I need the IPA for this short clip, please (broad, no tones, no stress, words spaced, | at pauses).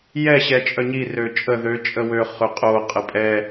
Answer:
jɛ ɕɛt͡ʃʼœɲi røt͡ʃʼə ðø t͡ʃʼəwø χøqʼo qʼəpʼɛ